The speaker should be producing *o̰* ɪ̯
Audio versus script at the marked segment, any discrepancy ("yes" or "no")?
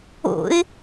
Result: no